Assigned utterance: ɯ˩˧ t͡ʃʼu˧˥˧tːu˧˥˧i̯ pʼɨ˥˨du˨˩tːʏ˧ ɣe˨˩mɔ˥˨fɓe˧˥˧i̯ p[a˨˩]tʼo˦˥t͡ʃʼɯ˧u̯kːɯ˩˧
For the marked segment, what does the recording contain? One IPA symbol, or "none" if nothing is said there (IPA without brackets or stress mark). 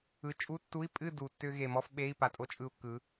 a˨˩